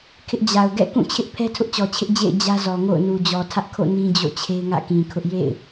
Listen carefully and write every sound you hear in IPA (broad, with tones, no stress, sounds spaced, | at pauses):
kʰ ɪ˦ ʔ d͡ʑ a˨ ʊ̯ ɡ ɛ̰˦˨ k ũ˦˨ t͡ɕʰ ɪ˦ ʔ pʰ ɛ˦ tʰ ʊ˦ ʔ t͡ɕ ɔ˨ t͡ɕʰ ɪ˦ ʔ d͡ʑ ḛ˦˨ ɪ̯ d͡ʑ ä˦ z ɔ˨ ŋ o̰˦˨ ʊ̯ n u˨ d͡ʑ ɔ˨ tʰ ä˦ ʔ kʰ o̰˦˨ n ĩ˦ d͡ʑ o̰˦˨ t͡ɕʰ e˦ ɪ̯ ŋ ä̰˦˨ k ĩ˨ kʰ ʊ˦ ʔ j ḛ˦˨ ɪ̯